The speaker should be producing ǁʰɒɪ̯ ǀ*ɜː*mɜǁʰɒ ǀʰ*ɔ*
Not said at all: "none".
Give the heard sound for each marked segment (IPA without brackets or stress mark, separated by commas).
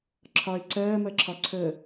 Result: ɜː, ə